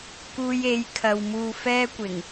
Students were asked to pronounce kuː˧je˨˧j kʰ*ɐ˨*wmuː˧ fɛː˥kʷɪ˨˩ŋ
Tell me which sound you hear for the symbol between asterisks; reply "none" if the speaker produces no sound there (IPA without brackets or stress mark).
ɐ˨